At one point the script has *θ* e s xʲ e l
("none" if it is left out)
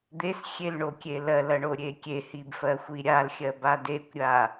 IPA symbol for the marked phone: d̪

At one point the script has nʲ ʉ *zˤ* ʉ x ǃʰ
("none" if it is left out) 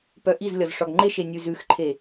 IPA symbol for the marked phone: z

